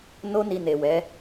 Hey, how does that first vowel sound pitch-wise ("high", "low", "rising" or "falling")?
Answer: high